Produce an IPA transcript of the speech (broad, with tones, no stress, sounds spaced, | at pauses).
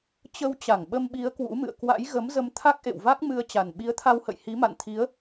t͡ɕ ə˧ w t͡ɕ a˧˩ ŋ ɓ ə˧ m ɓ i˨˦ ə̯ k w ṵ˧˥ m ɨ̰˧˨ ə̯ k w a̰˧˥ j ɣ ə˨˦ m z ə˧ m t̪ʰ a˦˥ k̚ ʔ ḛ˧˨ w v a˦˥ k̚ m ɨ˧ ə̯ t͡ɕ a˨˩ n ɓ i˨˦ ə̯ t̪ʰ a˧ w h ə̰˧˨ j h i˨˦ m a̰˧˨ n t̪ʰ i˨˦ ə̯